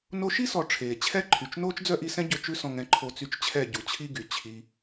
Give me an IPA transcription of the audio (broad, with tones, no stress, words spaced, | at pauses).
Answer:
no˧ʃi˦sɔ˨ ʈ͡ʂʰeː˨ t͡ɕʰɛ˦ǃʰy˨t͡ʃ noː˦t͡ʃd͡zœ˦ʔi˧sɛ̃˦ ɟɵ˧ t͡ʃʉ˦sɔ̃˧ŋɛ̃˧ ǃʰo˧t͡sy˧t͡ʃt͡ɕʰɛ˦˨ ɟu˨t͡ɕʰi˧ɡy˨ t͡ɕʰi˧